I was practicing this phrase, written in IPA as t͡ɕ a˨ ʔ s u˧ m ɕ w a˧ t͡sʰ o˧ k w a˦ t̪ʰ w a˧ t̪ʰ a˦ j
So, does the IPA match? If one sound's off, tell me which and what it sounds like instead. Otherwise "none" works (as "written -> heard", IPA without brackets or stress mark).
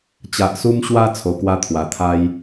none